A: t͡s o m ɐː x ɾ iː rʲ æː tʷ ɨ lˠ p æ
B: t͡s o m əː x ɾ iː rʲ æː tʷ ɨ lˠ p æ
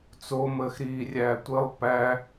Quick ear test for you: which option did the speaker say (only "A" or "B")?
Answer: B